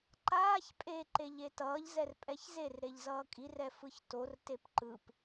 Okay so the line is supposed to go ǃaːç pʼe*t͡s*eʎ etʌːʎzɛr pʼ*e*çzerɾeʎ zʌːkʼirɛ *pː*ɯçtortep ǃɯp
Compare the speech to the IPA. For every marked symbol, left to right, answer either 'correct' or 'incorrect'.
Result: incorrect, incorrect, incorrect

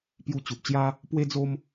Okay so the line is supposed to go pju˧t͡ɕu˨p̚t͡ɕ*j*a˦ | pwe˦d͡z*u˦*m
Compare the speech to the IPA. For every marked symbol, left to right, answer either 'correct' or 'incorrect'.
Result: correct, incorrect

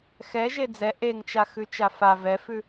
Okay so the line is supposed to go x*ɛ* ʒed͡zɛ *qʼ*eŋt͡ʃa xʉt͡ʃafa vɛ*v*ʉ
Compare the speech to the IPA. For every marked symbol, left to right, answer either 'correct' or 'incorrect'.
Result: correct, incorrect, incorrect

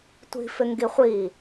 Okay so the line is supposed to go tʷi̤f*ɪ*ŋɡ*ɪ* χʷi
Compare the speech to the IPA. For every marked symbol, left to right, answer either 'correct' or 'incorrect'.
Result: correct, incorrect

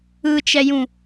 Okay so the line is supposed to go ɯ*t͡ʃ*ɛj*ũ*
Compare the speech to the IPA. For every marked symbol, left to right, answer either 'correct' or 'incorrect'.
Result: correct, correct

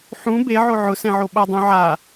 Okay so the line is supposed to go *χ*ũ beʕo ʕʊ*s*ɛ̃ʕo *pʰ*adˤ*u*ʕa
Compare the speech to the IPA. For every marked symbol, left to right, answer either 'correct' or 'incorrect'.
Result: incorrect, correct, incorrect, incorrect

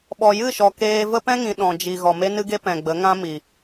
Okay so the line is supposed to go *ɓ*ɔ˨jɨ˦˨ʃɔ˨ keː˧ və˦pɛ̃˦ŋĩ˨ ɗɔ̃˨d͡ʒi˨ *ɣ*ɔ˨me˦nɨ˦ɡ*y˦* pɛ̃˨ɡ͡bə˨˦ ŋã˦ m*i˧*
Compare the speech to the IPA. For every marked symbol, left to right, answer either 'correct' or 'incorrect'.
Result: correct, correct, incorrect, incorrect

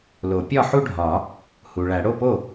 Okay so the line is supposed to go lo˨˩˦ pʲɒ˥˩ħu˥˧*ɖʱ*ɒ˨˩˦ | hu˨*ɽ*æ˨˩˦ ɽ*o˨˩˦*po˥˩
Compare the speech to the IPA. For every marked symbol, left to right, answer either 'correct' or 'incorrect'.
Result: correct, incorrect, incorrect

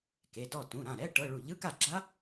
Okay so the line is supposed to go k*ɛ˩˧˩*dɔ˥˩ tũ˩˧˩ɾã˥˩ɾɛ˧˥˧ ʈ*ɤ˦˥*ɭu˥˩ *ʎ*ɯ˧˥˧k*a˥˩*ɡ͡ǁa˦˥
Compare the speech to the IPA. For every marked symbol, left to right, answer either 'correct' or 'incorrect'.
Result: incorrect, incorrect, correct, correct

